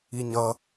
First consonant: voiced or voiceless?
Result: voiced